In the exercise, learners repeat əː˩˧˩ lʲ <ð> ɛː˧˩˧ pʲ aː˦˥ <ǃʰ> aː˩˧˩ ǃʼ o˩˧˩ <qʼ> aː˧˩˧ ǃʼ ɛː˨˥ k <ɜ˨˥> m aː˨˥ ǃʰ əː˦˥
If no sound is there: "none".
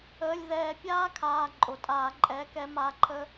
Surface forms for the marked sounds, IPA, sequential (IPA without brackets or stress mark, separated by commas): ð, kʰ, tʼ, ɛ˨˥